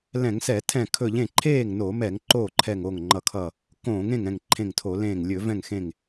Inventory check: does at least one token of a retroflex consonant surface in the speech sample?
no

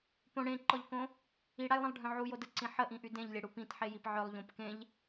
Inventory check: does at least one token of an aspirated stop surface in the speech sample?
no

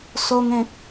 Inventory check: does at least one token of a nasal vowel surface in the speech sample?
yes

